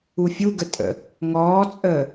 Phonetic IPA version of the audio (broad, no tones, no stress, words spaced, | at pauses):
ufʲuɡə tʼə̰ | ŋɔːt͡sʼəː